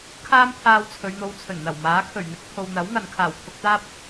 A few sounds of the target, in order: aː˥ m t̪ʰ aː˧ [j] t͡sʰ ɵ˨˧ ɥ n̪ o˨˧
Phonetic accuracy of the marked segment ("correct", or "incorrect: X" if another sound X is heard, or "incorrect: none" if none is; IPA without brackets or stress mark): incorrect: w